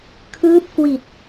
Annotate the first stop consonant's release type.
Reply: aspirated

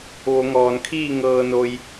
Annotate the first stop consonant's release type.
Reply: aspirated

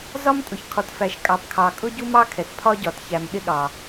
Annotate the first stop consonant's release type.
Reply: ejective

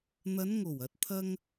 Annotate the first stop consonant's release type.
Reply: plain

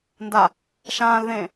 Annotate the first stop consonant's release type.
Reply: plain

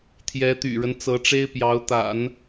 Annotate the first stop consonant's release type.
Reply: aspirated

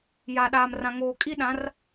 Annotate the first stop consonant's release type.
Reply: implosive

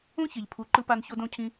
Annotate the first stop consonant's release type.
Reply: aspirated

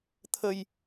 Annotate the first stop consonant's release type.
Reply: aspirated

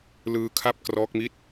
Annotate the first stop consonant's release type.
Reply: aspirated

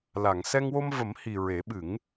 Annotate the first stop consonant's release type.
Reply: implosive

